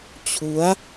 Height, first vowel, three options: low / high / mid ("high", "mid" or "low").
high